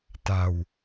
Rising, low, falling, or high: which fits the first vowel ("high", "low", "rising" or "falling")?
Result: low